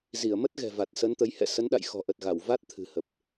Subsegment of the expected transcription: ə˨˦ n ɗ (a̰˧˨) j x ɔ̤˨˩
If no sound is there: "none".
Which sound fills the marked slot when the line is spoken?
a̰˧˨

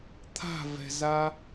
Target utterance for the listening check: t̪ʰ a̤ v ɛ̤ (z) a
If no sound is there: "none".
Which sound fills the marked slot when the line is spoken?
z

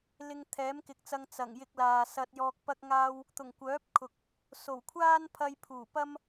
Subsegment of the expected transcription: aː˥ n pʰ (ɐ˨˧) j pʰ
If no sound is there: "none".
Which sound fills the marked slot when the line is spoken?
ɐ˧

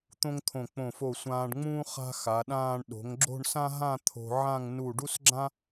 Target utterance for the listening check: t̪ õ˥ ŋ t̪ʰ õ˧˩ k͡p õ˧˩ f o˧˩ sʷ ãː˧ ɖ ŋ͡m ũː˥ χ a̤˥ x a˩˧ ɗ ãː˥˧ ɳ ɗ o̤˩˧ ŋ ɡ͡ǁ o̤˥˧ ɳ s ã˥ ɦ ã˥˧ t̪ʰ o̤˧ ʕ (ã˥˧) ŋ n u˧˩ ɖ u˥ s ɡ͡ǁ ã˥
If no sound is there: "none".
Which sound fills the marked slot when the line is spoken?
ã˥˧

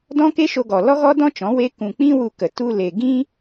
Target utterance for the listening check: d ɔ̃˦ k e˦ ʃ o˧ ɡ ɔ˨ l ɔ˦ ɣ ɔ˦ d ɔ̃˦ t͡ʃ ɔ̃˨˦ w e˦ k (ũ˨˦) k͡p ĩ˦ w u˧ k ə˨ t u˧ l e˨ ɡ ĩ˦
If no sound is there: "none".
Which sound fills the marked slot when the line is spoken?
ũ˧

